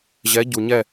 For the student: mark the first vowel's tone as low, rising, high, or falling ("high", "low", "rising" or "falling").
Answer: rising